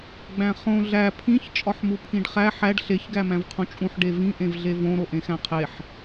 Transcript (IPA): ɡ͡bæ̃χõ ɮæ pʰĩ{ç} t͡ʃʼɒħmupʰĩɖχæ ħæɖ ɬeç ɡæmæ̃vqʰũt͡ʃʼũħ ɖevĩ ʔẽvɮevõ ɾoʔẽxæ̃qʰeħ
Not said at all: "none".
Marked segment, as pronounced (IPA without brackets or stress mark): ç